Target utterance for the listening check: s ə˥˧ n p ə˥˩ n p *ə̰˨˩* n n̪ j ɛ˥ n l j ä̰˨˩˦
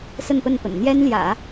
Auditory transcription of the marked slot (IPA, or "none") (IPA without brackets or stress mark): ə̰˨˩